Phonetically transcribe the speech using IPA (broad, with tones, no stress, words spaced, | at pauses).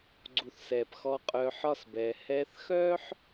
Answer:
ɡ͡ǀu˨θsɛː˨p xɔ˧ qʼœː˧ ħɒ˦s bɛː˧ hɛː˧θxœː˦ħ